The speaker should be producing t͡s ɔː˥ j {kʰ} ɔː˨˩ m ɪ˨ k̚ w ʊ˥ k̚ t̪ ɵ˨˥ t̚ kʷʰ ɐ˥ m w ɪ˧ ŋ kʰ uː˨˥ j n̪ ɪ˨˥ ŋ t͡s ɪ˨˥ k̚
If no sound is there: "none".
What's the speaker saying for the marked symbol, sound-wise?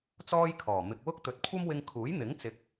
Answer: kʰ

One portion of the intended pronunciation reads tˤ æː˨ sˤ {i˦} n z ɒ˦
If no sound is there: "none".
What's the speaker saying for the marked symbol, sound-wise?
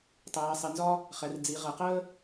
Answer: i˨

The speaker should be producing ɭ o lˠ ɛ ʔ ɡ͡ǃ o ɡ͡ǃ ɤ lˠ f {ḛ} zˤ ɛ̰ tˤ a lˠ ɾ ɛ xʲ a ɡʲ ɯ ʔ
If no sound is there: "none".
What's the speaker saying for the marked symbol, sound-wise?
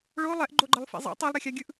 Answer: ḛ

